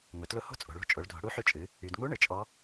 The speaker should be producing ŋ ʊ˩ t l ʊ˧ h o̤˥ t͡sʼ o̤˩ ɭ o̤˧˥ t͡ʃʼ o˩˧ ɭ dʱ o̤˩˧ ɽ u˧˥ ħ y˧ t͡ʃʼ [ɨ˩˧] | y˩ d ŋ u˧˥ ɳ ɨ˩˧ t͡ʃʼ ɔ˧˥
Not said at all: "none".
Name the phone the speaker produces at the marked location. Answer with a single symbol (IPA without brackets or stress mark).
ɨ˩˧